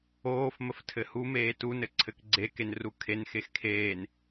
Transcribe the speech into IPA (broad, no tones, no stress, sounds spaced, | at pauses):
oː f m ə f tʰ ɘ h u m eː t u n ɘ ǀʰ ɘ k ɡ͡ǀ e k e n r u kʰ e n x e x kʰ eː n